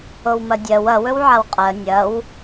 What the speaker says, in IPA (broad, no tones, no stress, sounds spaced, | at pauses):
o w m ɐ dʲ ɜ w ɐ w ɵ w ʕ a w qʼ ɜ nʲ ɐ w